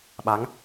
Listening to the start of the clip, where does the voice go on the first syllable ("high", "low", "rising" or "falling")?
rising